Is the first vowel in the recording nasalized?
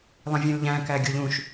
yes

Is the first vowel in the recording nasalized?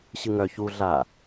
no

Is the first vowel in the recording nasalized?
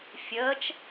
no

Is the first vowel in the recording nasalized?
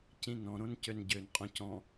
yes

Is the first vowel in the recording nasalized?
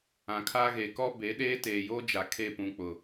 yes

